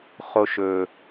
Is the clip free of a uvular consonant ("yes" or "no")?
no